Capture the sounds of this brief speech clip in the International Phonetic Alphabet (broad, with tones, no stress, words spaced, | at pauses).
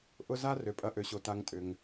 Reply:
ʔʊ˦za˥ rø˩pʼɐ˨ʔø˩ɕo˩ ta˨ŋtʼʏ˩ŋ